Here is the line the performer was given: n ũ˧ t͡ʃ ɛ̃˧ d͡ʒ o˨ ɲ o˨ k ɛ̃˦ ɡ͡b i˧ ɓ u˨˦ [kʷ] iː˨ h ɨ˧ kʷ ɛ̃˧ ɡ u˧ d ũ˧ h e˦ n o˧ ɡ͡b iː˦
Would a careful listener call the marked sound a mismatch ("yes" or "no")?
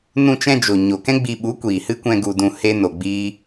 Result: no